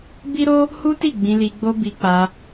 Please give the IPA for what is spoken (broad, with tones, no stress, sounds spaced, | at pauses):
b i˦ ɾ o˦ | h u˦ t i˦˨ ɡ͡b ĩ˧ l i˧ ɡ͡b o˦ b i˧ k͡p a˧